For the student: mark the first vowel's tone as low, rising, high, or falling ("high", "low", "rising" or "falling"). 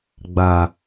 low